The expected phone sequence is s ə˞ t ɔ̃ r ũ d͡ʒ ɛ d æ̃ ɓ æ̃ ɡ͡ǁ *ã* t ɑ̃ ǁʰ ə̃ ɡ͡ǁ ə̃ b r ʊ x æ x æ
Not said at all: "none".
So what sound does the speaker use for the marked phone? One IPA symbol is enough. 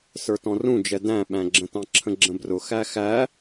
ə̃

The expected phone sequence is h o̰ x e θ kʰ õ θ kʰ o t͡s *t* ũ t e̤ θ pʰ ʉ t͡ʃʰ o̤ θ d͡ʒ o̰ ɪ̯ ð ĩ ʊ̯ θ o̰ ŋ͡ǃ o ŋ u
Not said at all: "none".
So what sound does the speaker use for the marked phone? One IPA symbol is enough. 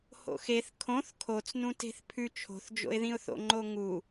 n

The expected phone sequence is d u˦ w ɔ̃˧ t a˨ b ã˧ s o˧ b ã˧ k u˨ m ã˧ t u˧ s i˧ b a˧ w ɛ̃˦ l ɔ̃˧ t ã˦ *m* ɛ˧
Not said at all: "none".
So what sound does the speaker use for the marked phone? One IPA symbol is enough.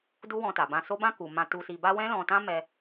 m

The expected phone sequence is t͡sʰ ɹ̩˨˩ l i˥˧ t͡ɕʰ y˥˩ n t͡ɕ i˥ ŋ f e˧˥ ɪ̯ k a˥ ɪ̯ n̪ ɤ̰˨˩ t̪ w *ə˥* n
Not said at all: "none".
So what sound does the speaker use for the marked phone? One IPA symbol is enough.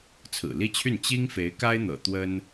ə˥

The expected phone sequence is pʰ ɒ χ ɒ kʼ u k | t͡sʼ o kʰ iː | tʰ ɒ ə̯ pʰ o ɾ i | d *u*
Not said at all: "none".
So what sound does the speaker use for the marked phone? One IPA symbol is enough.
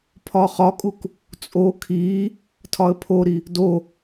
o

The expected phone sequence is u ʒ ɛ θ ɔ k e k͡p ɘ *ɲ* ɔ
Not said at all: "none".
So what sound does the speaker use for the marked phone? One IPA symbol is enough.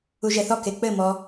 m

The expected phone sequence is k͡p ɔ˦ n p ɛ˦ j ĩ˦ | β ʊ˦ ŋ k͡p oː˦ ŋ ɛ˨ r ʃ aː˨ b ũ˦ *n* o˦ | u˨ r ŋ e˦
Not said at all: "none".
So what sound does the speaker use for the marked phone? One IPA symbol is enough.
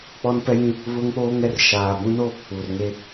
n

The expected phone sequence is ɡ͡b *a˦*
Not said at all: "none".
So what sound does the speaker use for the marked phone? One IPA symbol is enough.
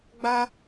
a˦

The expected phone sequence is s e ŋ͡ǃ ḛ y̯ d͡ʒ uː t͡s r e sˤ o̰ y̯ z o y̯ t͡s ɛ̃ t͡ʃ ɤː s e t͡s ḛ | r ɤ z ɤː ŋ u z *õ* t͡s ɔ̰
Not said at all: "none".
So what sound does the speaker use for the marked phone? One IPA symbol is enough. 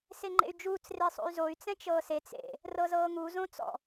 õ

